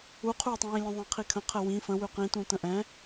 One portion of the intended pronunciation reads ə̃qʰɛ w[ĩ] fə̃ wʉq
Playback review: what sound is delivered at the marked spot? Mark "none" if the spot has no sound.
ĩ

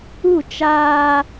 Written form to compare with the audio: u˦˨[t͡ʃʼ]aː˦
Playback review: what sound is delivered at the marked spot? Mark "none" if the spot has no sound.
t͡ʃ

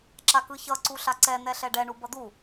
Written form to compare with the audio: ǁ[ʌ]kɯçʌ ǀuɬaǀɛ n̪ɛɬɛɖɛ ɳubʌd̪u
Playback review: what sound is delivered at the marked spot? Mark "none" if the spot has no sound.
a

